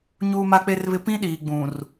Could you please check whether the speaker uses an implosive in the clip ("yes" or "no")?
yes